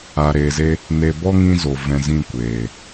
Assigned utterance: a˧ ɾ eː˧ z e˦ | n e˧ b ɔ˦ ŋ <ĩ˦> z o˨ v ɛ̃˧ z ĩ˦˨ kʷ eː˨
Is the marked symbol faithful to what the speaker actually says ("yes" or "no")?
yes